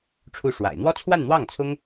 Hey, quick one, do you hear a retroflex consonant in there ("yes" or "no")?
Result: yes